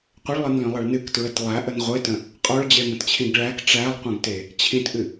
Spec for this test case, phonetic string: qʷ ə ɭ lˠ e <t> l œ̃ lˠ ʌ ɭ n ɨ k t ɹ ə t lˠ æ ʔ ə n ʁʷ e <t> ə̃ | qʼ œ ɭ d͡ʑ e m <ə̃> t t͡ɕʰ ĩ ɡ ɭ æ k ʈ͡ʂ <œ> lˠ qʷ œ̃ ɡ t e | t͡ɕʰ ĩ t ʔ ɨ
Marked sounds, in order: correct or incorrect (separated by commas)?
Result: incorrect, correct, correct, incorrect